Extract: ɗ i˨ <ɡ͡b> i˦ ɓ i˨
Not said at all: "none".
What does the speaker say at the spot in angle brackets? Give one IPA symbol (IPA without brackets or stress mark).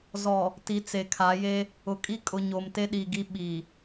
ɡ